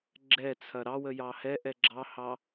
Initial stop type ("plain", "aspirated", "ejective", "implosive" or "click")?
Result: click